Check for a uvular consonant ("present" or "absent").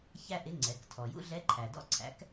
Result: absent